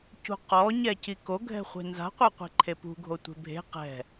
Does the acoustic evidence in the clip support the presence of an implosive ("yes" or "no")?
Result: no